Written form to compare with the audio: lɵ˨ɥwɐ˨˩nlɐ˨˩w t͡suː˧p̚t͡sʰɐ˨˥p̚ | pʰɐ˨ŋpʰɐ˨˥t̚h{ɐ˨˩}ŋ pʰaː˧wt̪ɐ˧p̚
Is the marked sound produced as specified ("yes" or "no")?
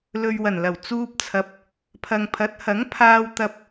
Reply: no